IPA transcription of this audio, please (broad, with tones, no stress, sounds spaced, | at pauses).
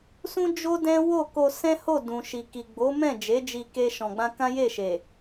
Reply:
s ũ˦ d͡ʒ o˦ d ɛ̃˦ w o˦˨ k o˧ s ɛ̃˦ h o˦˨ d ũ˨ ʃ i˨ k i˨ ɡ͡b o˨˦ m ɛ̃˦˨ d͡ʒ e˨˦ d͡ʒ i˧ k e˦ ʃ ɔ̃˧ ɡ͡b ã˦ k ã˦ j e˦˨ ʃ e˨